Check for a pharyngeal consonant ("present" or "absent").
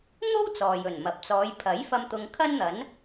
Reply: absent